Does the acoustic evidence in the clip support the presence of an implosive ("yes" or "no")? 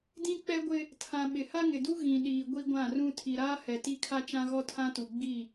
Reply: yes